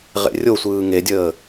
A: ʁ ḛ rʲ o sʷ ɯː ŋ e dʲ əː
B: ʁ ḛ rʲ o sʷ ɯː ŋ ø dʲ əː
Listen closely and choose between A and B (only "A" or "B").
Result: A